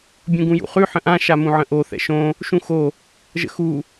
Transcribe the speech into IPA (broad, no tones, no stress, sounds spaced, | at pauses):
bʲ ũ ɡ ũ j ṵ χ ʉ ħ ə̃ ʔ ã ʃ a m ũ ʕ ə̃ ʔ o θ ɛ̰ ʃ õ | ʃ ũ x o | ʒ ə̰ x u